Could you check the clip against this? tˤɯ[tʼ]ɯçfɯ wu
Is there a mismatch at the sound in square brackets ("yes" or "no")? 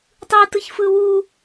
yes